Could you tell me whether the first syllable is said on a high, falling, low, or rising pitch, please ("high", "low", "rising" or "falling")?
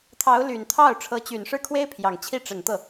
rising